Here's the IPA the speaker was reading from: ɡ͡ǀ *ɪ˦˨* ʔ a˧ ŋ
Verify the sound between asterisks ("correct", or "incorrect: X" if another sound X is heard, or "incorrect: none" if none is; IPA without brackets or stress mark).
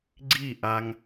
incorrect: i˦˨